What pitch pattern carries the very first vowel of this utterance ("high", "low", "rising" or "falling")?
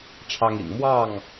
high